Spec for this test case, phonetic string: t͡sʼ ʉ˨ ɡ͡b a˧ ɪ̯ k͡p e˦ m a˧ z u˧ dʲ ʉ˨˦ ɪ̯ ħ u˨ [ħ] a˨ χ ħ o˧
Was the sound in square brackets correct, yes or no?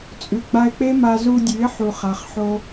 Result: no